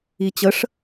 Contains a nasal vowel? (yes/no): no